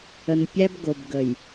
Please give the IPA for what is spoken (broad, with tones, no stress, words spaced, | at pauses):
ə˨npʲæ˦b ɡo˨bɡə˨j